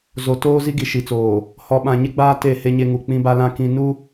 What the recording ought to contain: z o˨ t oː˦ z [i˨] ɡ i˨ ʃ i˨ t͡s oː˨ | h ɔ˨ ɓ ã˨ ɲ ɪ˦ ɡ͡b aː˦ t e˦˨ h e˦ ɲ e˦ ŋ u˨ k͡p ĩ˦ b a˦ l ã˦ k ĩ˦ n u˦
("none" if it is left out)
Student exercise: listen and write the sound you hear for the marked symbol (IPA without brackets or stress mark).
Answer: i˦